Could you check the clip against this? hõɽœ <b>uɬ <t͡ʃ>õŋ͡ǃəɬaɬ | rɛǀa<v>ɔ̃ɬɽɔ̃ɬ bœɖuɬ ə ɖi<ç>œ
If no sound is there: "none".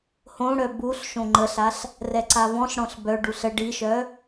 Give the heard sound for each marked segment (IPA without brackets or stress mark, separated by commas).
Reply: b, ʃ, v, ʃ